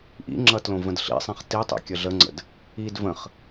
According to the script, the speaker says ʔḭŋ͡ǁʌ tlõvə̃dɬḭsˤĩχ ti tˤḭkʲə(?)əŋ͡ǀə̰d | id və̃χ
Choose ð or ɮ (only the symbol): ɮ